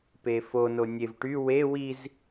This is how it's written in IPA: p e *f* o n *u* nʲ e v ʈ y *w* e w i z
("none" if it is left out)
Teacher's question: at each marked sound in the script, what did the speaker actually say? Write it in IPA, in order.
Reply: f, o, w

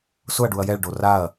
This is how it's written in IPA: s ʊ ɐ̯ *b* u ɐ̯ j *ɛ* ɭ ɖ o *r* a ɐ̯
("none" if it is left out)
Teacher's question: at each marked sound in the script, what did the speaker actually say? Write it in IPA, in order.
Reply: ɖ, ɛ, r

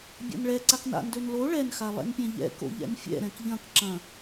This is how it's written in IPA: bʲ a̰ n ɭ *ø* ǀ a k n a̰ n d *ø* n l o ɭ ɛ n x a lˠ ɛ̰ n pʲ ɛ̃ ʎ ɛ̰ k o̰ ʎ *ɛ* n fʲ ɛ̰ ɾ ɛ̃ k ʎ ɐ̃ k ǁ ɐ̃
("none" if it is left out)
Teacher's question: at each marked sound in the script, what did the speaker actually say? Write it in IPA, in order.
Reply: ɛ, ø, ɛ̰

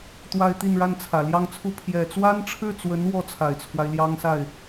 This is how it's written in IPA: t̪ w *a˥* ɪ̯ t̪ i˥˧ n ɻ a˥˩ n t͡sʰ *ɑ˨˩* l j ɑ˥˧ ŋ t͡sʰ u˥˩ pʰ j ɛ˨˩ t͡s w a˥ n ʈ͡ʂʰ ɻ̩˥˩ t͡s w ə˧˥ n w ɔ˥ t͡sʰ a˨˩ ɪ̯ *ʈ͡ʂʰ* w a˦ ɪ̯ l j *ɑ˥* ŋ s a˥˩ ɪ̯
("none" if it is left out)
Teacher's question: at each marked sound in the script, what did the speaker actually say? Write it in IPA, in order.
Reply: a˥, ä˨˩, t͡sʰ, ɑ˥

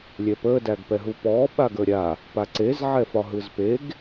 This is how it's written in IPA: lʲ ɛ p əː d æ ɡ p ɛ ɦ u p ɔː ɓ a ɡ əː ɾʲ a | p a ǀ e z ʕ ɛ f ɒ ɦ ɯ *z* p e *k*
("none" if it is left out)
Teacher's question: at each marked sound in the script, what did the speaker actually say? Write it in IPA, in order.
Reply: z, ɡ

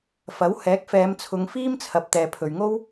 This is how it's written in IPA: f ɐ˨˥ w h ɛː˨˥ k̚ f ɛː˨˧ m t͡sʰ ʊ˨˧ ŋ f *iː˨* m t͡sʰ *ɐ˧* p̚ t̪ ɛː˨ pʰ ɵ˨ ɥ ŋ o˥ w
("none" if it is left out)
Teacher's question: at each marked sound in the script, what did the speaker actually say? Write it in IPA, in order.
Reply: iː˥, ɐ˨

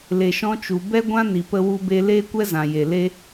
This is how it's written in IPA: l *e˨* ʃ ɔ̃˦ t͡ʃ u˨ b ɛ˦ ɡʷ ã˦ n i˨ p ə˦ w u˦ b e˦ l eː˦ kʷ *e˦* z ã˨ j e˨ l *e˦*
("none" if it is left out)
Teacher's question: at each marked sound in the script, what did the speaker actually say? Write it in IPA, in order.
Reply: e˨, ɛ˦, e˦

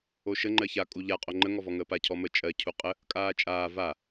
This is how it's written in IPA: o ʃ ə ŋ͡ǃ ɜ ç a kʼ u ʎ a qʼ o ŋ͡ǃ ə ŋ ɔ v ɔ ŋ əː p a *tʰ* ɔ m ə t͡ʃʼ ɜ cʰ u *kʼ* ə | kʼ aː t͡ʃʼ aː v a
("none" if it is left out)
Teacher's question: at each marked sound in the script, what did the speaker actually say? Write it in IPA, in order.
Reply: cʰ, qʼ

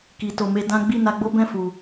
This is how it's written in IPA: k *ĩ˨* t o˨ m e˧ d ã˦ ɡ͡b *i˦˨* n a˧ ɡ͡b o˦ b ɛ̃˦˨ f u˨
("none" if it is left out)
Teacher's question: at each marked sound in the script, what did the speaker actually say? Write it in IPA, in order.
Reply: i˨, i˦˨

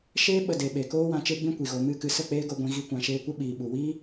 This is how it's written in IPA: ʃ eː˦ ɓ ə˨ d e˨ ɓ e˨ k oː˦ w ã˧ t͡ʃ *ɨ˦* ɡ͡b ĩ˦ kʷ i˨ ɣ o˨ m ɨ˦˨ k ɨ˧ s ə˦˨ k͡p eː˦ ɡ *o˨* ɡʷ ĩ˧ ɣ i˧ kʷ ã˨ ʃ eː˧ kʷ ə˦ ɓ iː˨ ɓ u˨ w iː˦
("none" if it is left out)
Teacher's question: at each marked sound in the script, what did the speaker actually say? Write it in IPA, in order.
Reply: e˦, o˧

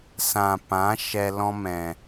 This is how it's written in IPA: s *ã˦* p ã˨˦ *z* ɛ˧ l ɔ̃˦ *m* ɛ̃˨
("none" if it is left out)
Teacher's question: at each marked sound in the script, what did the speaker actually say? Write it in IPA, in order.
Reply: ã˨, ʃ, m

